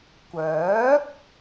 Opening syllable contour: rising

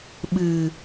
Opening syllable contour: low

